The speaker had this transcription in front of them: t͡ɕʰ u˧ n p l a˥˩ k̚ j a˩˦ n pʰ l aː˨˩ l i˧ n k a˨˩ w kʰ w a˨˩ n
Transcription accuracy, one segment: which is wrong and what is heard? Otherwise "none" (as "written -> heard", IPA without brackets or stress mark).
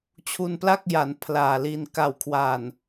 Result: none